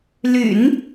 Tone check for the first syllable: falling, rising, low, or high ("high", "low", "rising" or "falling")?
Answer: low